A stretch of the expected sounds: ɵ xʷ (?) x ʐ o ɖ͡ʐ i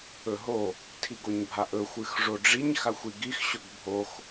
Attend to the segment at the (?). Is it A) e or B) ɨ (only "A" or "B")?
B